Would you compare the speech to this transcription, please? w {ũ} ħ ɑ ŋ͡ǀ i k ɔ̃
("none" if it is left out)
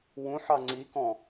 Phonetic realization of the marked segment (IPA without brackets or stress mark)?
ũ